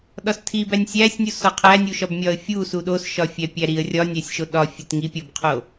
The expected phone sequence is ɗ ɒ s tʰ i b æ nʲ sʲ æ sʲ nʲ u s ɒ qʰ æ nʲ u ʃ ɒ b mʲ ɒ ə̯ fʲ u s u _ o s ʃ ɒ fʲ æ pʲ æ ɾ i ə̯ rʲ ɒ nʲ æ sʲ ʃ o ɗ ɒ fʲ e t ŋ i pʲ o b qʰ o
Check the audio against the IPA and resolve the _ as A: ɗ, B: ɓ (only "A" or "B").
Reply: A